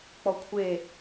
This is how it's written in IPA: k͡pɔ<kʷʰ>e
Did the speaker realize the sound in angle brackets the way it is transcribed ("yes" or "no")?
yes